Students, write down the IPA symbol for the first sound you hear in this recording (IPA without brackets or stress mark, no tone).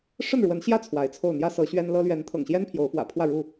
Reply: ʂ